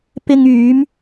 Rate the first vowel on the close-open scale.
close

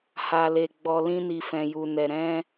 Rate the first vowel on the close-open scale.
open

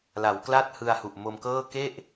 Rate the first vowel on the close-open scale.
open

